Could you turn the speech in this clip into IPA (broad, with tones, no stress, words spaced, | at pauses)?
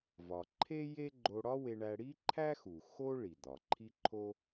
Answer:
vɒ˩ǃʰe˥je˥ɡ͡ǃo˧ ɽɒ˥we˧ɳæ˧ ɽi˥ǃʰæ˥xu˩ xo˥ ɭi˩d̪ɒ˩ǃʰi˥ ǃʰo˥